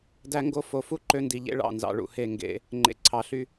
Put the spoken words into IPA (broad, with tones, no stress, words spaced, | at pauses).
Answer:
dæ˦ŋɡo˦ fo˨fu˦ ǃø˦ndi˨ʎḛ˦ ɭɑ̰˦˨nzɑ̰˨ɭṵ˨he˦˨ ŋɡḛ˦ | ŋ͡ǃḛ˨ǀʰɑ˨ ɬy˦